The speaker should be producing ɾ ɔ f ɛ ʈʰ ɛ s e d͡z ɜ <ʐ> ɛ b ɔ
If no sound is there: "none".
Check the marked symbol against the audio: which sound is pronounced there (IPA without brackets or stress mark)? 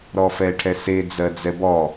d͡z